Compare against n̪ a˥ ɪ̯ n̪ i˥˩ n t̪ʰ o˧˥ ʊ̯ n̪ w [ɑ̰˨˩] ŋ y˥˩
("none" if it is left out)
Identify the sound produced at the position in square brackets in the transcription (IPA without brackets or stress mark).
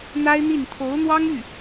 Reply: ɑ˥